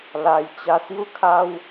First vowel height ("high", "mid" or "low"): low